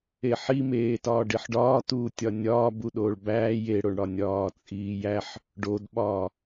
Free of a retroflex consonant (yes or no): no